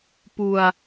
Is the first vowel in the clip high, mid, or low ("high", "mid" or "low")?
high